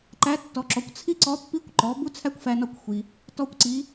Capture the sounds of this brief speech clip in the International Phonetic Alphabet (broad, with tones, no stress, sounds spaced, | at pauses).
ǃ æ˧˥ tː ɔ˩˧ ǁ ɔ˩˧ kʷ t͡sʰ i˥ ǀ ɔ˧˥ pː i˧˥ kʷ ǃ ɔ˩˧ b u˥ t͡sʰ æ˥ kʷ f æ˧ n ɒ˧ kʷ xʷ i˩ | t ɔ˧ kʷ ǀ i˩˧